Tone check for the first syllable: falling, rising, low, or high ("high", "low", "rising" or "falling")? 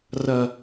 low